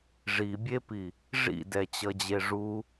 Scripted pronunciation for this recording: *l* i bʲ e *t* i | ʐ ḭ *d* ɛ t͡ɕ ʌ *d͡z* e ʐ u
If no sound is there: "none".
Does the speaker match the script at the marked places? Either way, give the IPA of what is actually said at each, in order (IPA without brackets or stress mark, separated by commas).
ʐ, p, d, d͡ʑ